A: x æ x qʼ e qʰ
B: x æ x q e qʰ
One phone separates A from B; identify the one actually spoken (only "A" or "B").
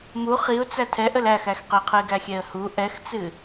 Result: B